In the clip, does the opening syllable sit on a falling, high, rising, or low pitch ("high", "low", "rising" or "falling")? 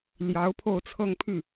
rising